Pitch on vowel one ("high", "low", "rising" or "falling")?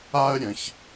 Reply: high